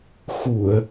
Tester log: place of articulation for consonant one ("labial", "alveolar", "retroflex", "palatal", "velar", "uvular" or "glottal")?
velar